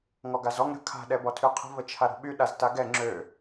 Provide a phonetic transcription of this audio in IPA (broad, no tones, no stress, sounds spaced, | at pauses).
ŋ ɔ ɡ a z ɔ ŋ ɾ ə̤ kʰ a̤ ɗ ɛ b ɔ tʰ y qʰ ə̤ v ə t͡ʃʰ a ɾ o̤ ɓ y ɗ a z t a ɡ ɛ ŋ͡ǁ ø